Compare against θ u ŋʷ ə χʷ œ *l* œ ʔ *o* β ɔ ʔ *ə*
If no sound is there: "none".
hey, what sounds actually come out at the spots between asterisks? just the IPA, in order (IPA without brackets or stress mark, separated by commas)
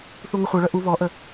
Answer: ɭ, u, ə